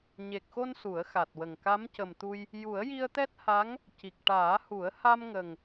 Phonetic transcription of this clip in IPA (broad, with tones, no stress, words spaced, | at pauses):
ɲe˨˩k̚xo˧n su˨˩˦ə̯xa˨˩t̚wə˨˩ŋ ka˧˥mcə˨˩mt̪u˧j | ju˨˩˦ə̯ji˧ə̯t̪ɛ˦˥t̚ha˧˥ŋ | ci˨˩k̚ʈaː˨˩˦hu˨˩˦ə̯ ha˧mŋə˨˩ŋ